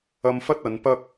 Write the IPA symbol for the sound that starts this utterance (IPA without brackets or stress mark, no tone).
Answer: ɐ